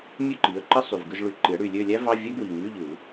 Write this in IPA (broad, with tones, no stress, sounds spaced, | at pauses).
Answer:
mʲ ø˥˨ ǃ i˩˥ ə̯ ǃ ɯ˧˥˧ sˤ y˨˩ v ɡ ɯ˥˨ z ɭ y˨˩˦ ǃ i˩˥ ə̯ ɽ y˨˩ lʲ ø˥˨ lʲ æ˥ v ɑ˧˥˧ vʲ æ˥ ɡ w i˨˩ ŋ y˧˥˧ ʎ ɯ˨˩˦